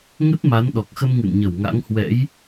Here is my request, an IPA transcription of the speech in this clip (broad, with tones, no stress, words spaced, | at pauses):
ŋə˦˥t̚ma˨˦n ɗɔ˨˩k̚xə˧m ŋɨ̰˧˨nɲə˧˩w ŋa̰˧˥ŋhwɛ̰˧˥j